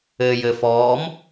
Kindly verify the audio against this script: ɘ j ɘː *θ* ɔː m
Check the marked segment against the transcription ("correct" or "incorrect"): incorrect